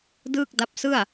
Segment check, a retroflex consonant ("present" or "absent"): absent